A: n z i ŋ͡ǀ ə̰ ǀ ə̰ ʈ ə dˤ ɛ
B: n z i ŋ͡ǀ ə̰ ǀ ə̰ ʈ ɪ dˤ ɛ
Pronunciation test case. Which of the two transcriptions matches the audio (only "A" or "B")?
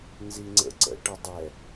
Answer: A